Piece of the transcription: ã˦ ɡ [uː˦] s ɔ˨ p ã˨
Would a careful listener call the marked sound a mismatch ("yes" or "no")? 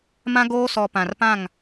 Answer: yes